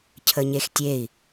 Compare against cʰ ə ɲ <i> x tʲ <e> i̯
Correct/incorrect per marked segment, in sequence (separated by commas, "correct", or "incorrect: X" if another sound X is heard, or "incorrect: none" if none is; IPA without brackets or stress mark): incorrect: e, correct